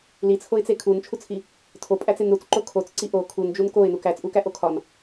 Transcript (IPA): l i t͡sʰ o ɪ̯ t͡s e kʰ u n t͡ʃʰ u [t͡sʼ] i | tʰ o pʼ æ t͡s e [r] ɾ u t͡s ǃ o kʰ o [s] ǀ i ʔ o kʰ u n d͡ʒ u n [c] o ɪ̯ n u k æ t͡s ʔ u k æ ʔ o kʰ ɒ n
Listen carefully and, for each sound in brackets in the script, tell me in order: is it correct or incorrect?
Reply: incorrect, incorrect, incorrect, incorrect

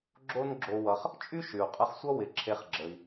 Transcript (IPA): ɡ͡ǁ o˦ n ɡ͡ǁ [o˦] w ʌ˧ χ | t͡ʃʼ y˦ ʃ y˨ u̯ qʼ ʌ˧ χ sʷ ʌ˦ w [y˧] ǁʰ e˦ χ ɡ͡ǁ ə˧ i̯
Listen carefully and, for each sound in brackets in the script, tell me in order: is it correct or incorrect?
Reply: incorrect, incorrect

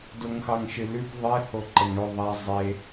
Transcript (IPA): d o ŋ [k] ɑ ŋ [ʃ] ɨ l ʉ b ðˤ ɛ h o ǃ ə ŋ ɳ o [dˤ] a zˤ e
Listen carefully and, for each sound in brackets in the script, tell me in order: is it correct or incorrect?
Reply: incorrect, correct, incorrect

